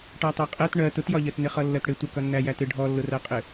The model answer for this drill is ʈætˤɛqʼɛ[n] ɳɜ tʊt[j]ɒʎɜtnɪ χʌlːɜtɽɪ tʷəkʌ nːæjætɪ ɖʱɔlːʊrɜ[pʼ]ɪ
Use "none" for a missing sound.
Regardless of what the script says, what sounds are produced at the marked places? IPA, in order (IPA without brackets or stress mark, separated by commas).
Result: t, j, qʼ